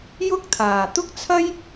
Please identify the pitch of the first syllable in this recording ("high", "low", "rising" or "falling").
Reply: high